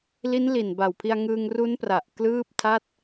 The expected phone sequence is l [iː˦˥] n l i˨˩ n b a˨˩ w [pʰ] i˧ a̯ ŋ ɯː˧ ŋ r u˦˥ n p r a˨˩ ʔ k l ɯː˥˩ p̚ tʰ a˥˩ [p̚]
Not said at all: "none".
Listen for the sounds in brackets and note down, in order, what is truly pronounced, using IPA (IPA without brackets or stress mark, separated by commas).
i˦˥, pʰ, t̚